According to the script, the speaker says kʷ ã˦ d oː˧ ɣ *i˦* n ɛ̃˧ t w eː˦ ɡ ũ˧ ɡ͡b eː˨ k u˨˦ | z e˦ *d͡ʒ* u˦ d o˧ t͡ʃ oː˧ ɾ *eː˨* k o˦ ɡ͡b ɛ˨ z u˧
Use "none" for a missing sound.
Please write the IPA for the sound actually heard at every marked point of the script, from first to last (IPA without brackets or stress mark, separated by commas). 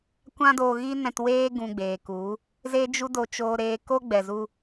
i˦, d͡ʒ, eː˧